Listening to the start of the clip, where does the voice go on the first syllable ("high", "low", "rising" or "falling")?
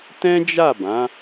high